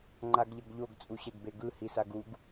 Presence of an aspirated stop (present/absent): absent